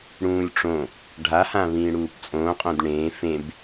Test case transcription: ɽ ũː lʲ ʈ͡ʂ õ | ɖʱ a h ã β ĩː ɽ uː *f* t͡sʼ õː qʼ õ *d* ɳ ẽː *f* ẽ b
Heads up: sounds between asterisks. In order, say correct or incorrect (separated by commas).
incorrect, correct, correct